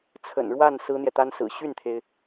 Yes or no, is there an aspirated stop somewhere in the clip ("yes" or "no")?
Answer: yes